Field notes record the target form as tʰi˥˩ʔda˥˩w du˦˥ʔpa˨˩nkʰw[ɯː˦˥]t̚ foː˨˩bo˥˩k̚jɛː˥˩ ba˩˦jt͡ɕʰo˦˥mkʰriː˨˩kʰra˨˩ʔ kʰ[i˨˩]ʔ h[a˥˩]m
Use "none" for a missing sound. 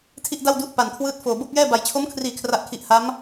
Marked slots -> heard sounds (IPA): ɯː˦˥, i˨˩, a˦˥

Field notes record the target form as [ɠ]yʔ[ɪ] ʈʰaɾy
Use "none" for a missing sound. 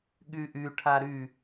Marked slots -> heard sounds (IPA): ɠ, y

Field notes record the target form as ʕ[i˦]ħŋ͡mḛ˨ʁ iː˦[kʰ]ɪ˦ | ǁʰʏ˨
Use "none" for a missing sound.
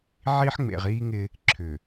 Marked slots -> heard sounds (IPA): i˦, ŋ

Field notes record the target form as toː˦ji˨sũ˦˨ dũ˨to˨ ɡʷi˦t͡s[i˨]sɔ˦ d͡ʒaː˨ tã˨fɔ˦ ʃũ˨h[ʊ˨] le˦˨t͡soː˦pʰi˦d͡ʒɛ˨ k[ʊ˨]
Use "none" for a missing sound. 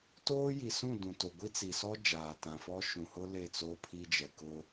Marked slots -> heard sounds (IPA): i˨, ʊ˦, ʊ˦

